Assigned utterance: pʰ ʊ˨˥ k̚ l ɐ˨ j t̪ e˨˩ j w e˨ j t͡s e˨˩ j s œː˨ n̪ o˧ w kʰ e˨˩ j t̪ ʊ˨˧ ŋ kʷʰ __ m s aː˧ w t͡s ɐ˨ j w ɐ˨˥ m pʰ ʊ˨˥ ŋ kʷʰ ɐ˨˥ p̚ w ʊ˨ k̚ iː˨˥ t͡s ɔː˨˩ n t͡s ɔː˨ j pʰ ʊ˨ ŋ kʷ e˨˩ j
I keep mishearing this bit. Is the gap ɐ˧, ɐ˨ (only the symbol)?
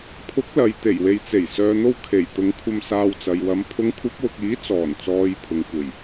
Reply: ɐ˧